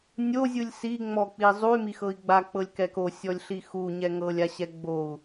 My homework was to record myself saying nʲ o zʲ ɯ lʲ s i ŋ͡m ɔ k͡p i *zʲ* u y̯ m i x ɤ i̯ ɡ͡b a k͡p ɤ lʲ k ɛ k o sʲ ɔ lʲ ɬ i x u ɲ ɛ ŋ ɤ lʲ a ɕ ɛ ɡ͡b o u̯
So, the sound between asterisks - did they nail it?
no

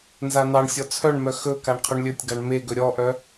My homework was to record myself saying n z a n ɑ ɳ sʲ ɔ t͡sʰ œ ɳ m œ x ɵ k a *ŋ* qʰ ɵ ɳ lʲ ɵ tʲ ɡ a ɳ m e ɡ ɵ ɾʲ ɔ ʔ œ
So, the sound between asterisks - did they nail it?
no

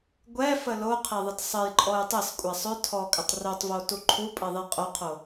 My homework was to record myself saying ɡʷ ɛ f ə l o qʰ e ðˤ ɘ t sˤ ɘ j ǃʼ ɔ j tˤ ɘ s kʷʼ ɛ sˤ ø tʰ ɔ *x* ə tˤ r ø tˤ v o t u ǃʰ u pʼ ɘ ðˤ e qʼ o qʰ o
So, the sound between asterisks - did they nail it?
no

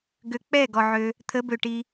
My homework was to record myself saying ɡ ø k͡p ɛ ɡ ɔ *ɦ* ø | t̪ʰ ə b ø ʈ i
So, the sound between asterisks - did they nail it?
no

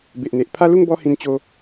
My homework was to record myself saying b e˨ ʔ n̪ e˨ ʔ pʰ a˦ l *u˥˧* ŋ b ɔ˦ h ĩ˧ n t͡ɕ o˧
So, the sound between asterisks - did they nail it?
yes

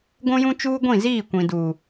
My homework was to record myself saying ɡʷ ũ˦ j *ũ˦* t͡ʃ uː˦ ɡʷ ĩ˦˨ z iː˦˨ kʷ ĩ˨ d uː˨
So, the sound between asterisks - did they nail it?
yes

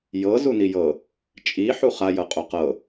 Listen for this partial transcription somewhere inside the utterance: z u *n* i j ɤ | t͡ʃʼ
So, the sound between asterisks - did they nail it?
yes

